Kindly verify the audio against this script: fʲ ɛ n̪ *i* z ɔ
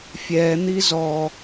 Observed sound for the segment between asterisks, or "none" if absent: i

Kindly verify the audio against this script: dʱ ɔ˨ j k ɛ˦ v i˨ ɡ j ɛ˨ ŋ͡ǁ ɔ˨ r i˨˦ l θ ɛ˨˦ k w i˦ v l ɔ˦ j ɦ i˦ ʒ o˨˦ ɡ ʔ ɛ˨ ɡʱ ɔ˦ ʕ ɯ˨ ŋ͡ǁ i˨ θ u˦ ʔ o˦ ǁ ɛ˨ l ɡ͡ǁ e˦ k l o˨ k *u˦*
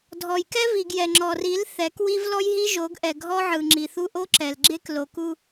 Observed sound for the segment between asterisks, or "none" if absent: u˦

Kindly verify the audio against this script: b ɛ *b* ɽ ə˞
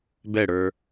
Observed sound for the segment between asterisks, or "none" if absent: none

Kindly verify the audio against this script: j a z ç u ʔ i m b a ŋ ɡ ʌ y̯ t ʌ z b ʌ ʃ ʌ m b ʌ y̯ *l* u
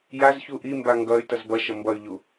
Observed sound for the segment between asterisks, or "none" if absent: ʎ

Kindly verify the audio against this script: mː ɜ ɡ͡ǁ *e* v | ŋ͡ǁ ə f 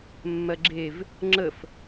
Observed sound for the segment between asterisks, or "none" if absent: e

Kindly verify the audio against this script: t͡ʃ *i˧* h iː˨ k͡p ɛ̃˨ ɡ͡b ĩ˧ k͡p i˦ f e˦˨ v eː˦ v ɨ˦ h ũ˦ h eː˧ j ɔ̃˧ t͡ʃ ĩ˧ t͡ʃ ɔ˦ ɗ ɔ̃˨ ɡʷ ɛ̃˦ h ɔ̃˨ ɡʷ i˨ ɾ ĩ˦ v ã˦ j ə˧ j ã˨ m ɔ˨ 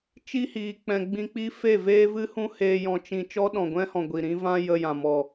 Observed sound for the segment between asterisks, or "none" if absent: i˦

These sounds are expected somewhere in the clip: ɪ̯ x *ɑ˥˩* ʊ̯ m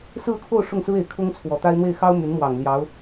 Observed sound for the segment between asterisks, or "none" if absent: ɑ˥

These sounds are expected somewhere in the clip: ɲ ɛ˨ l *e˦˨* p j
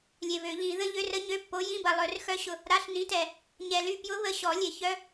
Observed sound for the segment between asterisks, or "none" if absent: y˦˨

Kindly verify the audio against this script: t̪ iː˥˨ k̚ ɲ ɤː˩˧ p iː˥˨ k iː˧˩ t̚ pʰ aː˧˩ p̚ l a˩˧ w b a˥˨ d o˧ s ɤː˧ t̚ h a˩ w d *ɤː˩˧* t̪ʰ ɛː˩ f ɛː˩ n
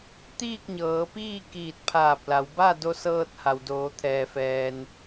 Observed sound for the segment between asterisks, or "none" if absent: oː˩˧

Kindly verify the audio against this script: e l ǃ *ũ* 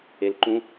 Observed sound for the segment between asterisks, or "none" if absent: ũ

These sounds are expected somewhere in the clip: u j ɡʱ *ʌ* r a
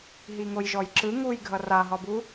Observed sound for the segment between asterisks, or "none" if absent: ʌ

